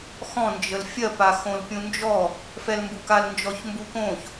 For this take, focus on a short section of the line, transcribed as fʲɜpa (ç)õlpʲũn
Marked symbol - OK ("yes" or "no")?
no